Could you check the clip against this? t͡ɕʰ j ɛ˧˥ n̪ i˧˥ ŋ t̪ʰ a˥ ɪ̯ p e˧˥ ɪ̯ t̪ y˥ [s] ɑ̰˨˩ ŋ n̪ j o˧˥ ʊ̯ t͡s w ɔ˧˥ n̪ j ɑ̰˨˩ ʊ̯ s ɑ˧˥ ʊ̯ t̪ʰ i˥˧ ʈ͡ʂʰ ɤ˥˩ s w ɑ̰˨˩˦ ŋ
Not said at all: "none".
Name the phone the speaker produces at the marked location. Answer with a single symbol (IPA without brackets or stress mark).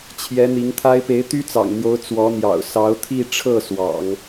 t͡s